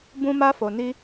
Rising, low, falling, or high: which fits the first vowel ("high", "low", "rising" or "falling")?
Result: high